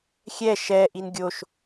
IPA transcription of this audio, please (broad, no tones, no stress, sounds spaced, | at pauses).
xʲ ɛ ʃ ɛ ʔ i n ɡʲ o ʃ